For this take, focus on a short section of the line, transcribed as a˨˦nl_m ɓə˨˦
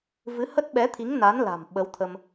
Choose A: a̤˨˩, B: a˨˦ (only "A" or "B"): A